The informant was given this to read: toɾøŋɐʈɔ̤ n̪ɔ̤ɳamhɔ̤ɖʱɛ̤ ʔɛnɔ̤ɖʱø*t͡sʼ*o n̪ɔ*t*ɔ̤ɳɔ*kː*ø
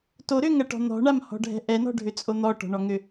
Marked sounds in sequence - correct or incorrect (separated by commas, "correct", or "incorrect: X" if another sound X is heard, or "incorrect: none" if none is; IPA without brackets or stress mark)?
correct, incorrect: ʈ, incorrect: ŋ